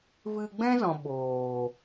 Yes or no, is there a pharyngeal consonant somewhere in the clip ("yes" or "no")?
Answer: no